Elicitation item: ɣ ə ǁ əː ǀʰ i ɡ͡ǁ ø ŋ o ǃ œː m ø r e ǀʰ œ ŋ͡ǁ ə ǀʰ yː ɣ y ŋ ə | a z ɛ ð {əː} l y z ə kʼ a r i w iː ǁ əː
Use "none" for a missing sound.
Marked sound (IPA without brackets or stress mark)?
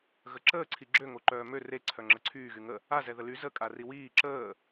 ə